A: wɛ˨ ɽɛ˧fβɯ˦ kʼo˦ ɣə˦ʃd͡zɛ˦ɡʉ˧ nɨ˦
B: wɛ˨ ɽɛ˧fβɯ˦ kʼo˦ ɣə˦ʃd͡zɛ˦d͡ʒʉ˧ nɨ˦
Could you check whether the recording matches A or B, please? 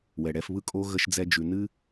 B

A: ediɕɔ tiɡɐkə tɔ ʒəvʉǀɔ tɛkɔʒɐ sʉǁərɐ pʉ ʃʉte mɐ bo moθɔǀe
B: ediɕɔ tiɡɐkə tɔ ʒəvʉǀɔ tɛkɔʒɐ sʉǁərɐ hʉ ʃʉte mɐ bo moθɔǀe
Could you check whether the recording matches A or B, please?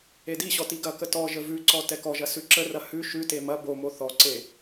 B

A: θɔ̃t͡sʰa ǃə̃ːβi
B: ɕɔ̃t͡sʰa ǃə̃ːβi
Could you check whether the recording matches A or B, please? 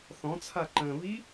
A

